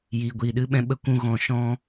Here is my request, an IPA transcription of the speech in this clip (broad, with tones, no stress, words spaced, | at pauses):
jiː˨ ɡʷiː˨ɗɨ˧ɓɛ̃˧ ɓə˦kʷũ˦ɣɔ̃˧ ʃɔ̃˦